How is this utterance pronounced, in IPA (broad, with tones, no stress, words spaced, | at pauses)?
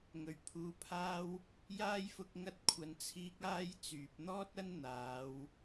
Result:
ŋɵ˨˩ɥpʰuː˨˧pʰaː˥w | jaː˥jfʊ˧k̚ ŋɐ˧t̚ kʷʰɐ˨nt͡sʰiː˧k̚ aː˥jt͡syː˨p̚ n̪ɔː˥t̚ɐ˥n n̪aː˨˧w